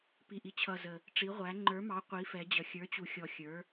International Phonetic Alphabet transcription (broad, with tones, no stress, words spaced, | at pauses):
pi˨ʔi˨ t͡ɕʰʌ˨zə˨ | ʈ͡ʂi˨˦ʁʷæ˨˦ ŋ͡ǃə˞˨˦mɑ˨˦ qʷi˨˦fɛ˨˦d͡ʑʌ˨ xʲə˞˨˦t͡ɕu˨xʲɔ˨ xʲə˞˨˦